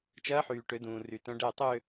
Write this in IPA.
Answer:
t͡ʃ ɐː˦˥ ħ yː˨ ʈ ø˨˦ d ũː˨ r y˨ t œ̃˦˥ ɖ ɛ˥˧ tˤ ø˥˧

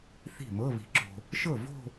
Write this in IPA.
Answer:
θ i̤˥˩ m ɤ˧˥˧ β i̤˨ ǁ o̤˨ | ʃ ɤ˥˩ v o̤˥˧

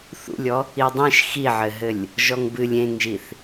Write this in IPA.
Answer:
θ ṵ lʲ ɔ | i dˤ ẽ ʃ x i ʕ ɘ ɦ ɘ lʲ | ʒ ɔ ŋ b ɨ lʲ ẽ ŋ ʒ i θ

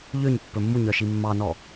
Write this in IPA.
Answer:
ʎ ø ɲ pː ɵ mː u ɲ œ ʃ i mː ɑ n ɔ

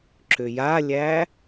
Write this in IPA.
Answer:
ǁ ʏ j a lʲ æ

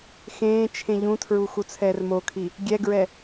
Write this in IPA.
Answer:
x ẽː t͡ʃʰ ẽ ʎ ũ tʰ ɹ u x u t͡sʰ ɛː r m o kʰ i | ɡʲ ɛ ɡ ɹ ɛ

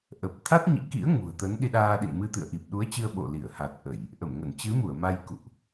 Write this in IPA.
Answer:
ʔ ə˨˩ p̚ t̪ʰ a˦˥ t̚ ɲ ḭ˧˥ k ḭ˧˥ ə̯ ŋ ṳ˨˩ ə̯ t̪ ə˨˦ n ɗ i˧ ɗ aː˧ ɗ ḭ˧˨ n m ɨ˧ t̪ ɨ̰˧˨ ə̯ ʔ i˨˩ p̚ ɗ u˨˦ ə̯ t͡ɕ ɨ˧ ə̯ ɓ o̰˧˨ l i˧˩ ə̯ h a˨˩ t̚ ʔ ə˧˩˨ j | ʔ ə˧˩ m ŋ ə˧˩ n t͡ɕ ɨ˨˦ m u˧˩ ə̯ m a˧ j k ṵ˧˨ ʔ

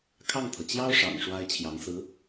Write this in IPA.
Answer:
kʰ ɑ˥˩ ŋ t̪ʰ ɤ˩ t͡ɕ j ɑ˥ ʊ̯ ʂ ɑ̰˨˩ ŋ ʂ w a˥ ɪ̯ t͡ɕʰ j ɑ˧˥ ŋ s ɹ̩˧˥

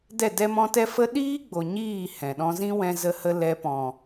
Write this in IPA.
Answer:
d ɛ˦˨ d ɛ˦ m ɔ̃˦ t ɛ˦ f ə˦ ɗ iː˦ ɡ͡b o˨ ɲ iː˦˨ h ɛ̃˨ ɗ ɔ̃˧ z ĩ˦ w ɛ̃˦ z ə˦ h ə˦ l ɛ˧ p ɔ̃˨

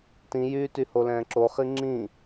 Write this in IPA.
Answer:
t ĩ j yː t y h o l ɛ̃ː ǁ o χ i ŋ͡ǁ ĩ

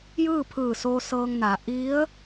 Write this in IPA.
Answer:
j ɯː˥˨ pʰ ɯː˧˩ s oː˧ s ɤː˧ ŋ n a˩˧ ʔ i˧˥ ə̯

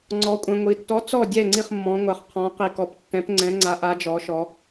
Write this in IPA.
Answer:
ŋ͡ǀ ɔ˩˧ kʷʼ ɛ̃˩ ŋʷ i˩ tː ɔ˨˥ t͡s ɔ˥˩ dʲ ɛ˥˩ ŋ͡ǀ i˥˩ χ mː ɔ̃˩˧ ŋʷ a˩ χ qʰ ɔ̃˩˧ q i˩ k ɔ˩˧ p tː ɛ̃˨˥ p ŋ͡ǀ ɛ̃˨˥ ŋ͡ǀ a˨˥ ʔ a˩˧ d͡ʒ ɔ˩˧ ʃ ɔ˩˧

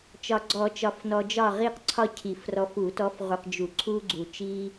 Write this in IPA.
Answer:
t͡ʃ ɒ˨ ɡ͡ǀ ɔ˨˩˦ t͡ʃ ɒ˨ f n ɔ˨ d͡ʒ ɒ˦˨ ʁ i˦˨ q ǀʰ ɒ˦ cʰ i˨˩˦ f r ɔ˨˦ f u˨˩˦ t ɔ˨˦ f ʁ u˨ q d͡ʒ u˨˩˦ ǀʰ u˦ ɡ͡ǀ u˨ t͡ʃ i˦

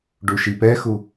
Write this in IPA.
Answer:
ɖ u ʃ i p ɛ x u

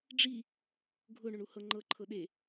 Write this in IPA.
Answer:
ɖ͡ʐ i | ɡʱ ʊ ɳ ʊ ɳ u h ɤ ŋ͡ǃ ɤ ǃʰ ɤ ɗ e

